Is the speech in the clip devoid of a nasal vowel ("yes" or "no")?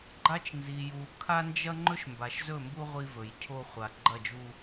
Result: yes